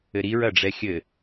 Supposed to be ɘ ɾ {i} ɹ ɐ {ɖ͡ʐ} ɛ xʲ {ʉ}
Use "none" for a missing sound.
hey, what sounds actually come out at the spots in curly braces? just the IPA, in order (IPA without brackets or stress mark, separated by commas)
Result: i, ɖ͡ʐ, ɘ